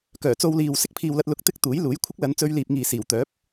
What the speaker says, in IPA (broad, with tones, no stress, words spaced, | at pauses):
kœː˨˩t͡so˧wliː˨w sɪ˥k̚pʰiː˨wlɐ˧t̚ lʊ˧k̚t̪ɪ˥k̚ t̪uː˨˥jluː˨˥j kʷʰɪ˥k̚lɐ˨˧nt͡sɵ˧ɥliː˨p̚ ŋiː˨siː˨˩wt̪œː˨˥p̚